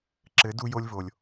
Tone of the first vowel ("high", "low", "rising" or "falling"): rising